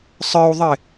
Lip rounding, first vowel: unrounded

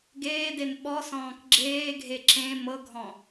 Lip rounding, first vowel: unrounded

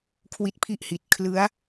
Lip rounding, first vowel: unrounded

